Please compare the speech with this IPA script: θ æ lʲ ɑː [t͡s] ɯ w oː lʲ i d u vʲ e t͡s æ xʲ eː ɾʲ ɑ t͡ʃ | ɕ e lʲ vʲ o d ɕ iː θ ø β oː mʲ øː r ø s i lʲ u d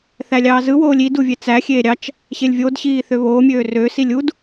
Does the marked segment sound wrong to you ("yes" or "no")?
yes